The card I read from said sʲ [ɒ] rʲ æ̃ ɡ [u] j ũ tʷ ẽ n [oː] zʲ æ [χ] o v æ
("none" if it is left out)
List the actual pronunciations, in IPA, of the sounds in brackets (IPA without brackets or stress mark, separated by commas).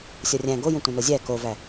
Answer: ɒ, o, o, k